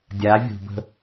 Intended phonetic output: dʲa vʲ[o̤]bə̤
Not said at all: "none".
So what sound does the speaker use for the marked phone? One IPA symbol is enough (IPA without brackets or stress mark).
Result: ṳ